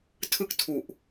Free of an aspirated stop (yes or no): no